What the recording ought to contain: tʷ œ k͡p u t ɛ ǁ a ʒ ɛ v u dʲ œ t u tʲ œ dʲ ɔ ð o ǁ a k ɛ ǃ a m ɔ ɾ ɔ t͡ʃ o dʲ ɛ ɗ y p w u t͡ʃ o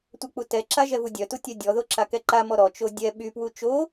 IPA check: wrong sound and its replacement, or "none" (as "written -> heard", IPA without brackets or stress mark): ɗ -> ɓ